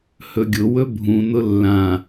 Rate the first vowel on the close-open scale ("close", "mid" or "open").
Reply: mid